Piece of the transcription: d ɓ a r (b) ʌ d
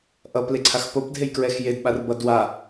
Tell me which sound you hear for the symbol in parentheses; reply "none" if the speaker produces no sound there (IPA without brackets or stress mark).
b